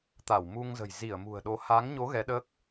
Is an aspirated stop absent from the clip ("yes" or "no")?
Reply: yes